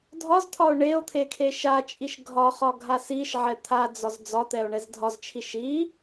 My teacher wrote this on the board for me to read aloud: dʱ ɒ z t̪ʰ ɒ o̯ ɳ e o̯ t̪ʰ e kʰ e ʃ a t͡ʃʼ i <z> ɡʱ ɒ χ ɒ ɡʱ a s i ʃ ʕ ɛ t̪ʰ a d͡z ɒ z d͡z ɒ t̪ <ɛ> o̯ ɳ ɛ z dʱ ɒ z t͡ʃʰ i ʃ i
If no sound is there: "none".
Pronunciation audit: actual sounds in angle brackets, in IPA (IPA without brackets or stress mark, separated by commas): ʃ, ɛ